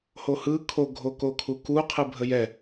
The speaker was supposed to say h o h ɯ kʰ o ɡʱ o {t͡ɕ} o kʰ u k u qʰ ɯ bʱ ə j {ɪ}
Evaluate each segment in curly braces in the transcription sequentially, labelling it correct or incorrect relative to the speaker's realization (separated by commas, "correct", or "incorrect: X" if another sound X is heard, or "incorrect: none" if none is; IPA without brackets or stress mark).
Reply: incorrect: k, incorrect: ɛ